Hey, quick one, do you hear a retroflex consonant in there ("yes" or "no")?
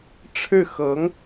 yes